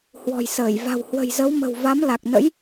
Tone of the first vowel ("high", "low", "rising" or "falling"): low